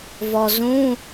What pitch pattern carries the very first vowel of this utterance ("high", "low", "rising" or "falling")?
low